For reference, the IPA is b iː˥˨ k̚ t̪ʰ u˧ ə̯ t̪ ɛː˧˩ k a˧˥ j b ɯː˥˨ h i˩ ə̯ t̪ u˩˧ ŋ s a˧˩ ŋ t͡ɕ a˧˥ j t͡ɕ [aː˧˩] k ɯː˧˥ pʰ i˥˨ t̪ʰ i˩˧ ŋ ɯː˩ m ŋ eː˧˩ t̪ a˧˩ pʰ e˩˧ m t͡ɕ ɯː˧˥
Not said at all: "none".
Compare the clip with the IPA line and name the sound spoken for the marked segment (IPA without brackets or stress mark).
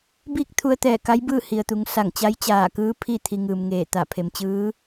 aː˧˩